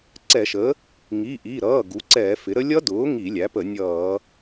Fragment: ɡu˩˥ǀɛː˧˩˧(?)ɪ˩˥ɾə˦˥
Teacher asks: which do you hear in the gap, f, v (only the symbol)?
f